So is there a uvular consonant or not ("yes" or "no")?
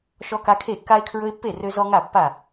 no